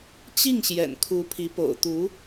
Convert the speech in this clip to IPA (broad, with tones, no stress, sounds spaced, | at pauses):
t͡ɕ i˥˩ ŋ ɕ j ɛ̰˨˩ n kʰ u˧˥ pʰ i˧˥ p o̰˨˩ ʊ̯ t̪ u˧˥